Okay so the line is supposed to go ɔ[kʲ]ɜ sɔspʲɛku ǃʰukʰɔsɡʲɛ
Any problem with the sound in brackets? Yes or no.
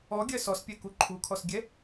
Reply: yes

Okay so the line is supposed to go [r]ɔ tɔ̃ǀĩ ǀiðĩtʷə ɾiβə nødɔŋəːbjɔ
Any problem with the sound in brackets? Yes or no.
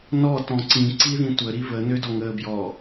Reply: yes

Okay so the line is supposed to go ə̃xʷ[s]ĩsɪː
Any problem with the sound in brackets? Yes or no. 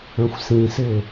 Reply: no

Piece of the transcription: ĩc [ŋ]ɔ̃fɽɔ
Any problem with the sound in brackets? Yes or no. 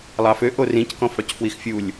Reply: yes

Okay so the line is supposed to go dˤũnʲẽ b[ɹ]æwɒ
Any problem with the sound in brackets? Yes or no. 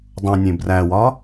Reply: yes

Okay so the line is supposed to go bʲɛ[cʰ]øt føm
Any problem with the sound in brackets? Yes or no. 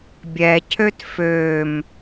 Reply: no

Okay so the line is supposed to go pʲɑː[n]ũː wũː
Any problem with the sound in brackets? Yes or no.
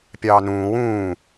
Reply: no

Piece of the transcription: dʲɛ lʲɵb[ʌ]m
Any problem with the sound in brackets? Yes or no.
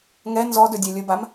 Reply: yes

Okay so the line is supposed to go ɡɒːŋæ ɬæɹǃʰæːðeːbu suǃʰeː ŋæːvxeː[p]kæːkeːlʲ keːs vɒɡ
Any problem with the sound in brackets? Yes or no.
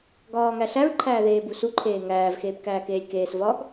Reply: no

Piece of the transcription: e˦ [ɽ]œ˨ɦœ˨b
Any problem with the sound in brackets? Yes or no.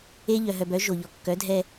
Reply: yes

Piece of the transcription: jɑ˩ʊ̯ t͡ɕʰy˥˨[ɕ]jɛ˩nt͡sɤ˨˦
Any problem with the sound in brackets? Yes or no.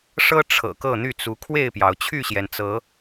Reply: no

